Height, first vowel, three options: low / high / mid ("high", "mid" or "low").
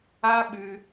low